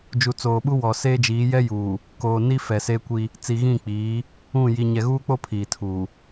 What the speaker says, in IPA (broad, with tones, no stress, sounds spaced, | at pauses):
d͡ʒ u˨ t͡s oː˨ ɓ u˦ w ɔ˨ s eː˦ d͡ʒ iː˨˦ j ɛ˦ j uː˨ | k oː˨ n i˦ f ɛ˨ s e˦ kʷ i˦ | t͡s i˨ ɣ ĩ˦˨ k͡p iː˨˦ | ũ˦˨ j i˨ ɲ ɛ˨ ɣ uː˦ k͡p o˦ pʰ iː˨ tʰ uː˨